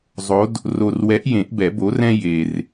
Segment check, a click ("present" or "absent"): absent